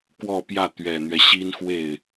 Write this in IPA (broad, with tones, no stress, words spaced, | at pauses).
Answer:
kwɔ˥˧pjä˥˩ t̪ɥɛ˨˩n̪ɥɛ˦ ɕi˥nxwe˥˩ɪ̯